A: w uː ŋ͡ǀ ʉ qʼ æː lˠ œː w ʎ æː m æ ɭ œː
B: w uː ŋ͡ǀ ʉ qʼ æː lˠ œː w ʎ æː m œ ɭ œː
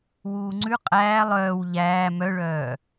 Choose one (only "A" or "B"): B